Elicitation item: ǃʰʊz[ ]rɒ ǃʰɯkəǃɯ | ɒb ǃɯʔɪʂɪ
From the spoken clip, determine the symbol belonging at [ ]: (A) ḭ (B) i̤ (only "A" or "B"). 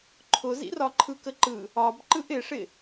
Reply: A